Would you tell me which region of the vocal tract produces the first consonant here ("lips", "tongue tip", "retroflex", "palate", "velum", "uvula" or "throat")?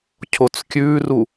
palate